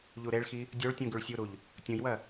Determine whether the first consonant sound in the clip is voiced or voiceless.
voiced